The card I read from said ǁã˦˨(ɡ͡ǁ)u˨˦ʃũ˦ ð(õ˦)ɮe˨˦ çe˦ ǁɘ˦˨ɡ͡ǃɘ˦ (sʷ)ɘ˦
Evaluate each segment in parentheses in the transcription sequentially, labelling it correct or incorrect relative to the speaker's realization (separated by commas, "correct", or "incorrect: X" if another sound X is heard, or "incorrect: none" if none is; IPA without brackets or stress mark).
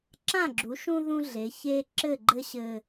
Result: correct, incorrect: ũ˦, incorrect: ɕ